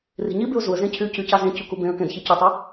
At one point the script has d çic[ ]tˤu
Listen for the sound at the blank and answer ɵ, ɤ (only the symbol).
ɵ